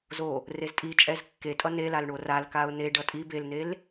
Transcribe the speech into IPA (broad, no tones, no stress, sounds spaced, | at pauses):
z o | r e z tʼ i t͡ʃʼ ɛ z kː e tʼ ʌ n e l a l ɳ o r a l k a ʊ̯ n e ɖ ʌ tʼ i b e l n e l